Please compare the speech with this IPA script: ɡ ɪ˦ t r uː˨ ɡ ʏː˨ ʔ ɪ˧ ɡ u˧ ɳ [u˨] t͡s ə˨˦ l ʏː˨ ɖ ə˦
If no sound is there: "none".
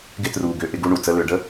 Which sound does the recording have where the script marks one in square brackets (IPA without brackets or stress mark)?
u˨